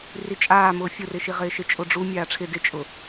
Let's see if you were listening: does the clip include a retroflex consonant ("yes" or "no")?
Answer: yes